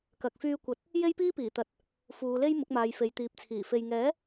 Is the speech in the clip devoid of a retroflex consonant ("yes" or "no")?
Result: yes